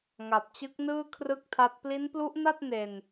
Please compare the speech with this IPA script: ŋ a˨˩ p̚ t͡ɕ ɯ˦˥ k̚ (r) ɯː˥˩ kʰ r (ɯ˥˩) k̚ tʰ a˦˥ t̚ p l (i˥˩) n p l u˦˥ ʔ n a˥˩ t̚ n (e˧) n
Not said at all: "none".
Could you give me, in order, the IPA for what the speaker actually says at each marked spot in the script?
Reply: n, ɯ˥˩, i˦˥, e˧

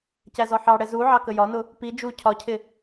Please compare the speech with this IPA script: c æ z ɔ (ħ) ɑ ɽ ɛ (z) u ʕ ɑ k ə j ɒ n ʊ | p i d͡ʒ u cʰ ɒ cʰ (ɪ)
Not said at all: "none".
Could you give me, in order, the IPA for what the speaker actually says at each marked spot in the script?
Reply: ħ, z, ɪ

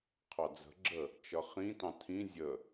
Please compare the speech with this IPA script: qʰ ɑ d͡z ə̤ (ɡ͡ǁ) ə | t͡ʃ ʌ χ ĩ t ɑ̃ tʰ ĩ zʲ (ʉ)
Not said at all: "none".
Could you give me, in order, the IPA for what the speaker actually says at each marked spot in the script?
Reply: ɡ͡ǁ, ə

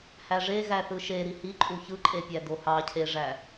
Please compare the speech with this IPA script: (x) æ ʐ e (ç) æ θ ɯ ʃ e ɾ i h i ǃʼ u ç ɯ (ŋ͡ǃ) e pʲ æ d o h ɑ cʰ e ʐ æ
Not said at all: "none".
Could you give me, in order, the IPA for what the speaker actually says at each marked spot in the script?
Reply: h, ɣ, ǃʼ

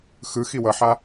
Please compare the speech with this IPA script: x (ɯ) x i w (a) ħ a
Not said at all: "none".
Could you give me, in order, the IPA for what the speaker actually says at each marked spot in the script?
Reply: ɯ, ʌ

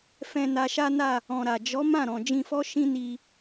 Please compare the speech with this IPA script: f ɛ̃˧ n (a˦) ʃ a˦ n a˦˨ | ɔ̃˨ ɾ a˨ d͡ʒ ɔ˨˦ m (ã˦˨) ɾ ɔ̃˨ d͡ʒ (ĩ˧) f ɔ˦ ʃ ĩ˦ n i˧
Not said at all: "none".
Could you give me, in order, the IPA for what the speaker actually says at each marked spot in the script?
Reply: a˧, ã˦˨, ĩ˧

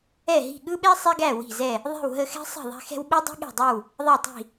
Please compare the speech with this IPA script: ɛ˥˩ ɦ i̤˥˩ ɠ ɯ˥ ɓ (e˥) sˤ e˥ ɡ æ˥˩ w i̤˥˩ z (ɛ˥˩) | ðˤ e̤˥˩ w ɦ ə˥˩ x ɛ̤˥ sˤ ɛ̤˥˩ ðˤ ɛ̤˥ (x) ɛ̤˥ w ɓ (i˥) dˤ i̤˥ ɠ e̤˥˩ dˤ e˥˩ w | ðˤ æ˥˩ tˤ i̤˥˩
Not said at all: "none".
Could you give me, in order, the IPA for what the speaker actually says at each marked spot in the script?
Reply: e˥, ɛ˥˩, x, i˥

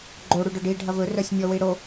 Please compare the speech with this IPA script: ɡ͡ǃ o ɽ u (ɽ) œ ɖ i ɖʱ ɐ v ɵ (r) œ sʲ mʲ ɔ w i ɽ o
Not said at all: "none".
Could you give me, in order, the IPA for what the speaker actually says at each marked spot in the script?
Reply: ɖ, r

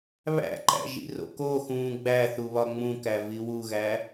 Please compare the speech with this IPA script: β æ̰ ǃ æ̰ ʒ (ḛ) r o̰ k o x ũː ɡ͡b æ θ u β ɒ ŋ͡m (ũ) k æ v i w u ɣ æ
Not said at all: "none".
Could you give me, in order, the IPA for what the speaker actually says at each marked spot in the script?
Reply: ḭ, ũ

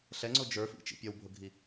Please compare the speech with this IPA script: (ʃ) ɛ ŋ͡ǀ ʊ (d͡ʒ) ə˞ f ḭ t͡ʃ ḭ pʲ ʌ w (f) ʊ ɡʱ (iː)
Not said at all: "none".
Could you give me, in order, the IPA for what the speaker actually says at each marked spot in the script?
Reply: ɬ, d͡ʒ, bʱ, i

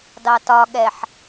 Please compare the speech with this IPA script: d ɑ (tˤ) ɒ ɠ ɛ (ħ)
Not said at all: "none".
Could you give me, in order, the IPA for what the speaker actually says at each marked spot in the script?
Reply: t, ħ

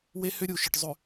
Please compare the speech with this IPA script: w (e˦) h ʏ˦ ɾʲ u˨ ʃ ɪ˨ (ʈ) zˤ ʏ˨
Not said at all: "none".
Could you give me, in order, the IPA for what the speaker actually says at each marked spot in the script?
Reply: e˦, ʈ

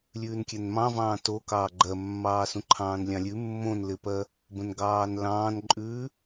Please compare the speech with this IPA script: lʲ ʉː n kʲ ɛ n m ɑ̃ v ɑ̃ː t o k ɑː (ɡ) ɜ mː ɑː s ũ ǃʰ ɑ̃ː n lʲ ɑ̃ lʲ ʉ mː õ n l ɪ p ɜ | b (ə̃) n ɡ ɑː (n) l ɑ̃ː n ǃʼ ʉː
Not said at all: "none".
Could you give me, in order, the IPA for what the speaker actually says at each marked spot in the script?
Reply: ɡ͡ǃ, ə̃, n

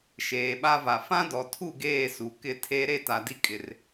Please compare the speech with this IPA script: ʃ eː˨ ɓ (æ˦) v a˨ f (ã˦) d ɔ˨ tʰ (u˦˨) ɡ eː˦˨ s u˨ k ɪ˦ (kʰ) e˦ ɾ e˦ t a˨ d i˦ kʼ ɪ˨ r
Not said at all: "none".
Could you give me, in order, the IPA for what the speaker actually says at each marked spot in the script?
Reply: a˦, ã˦, u˦˨, tʰ

